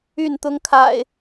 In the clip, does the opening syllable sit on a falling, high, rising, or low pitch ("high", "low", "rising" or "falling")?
falling